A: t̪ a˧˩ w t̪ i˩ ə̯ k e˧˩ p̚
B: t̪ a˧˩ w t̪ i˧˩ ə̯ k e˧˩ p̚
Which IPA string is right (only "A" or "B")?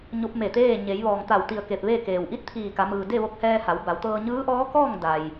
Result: B